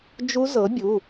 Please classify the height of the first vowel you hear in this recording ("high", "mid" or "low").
high